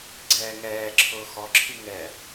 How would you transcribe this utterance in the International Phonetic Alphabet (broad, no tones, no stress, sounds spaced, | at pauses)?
ɡ͡ǀ ɛː ŋ ɛː ǁʰ ʊː x ɔ ǁʰ i ŋ ɛ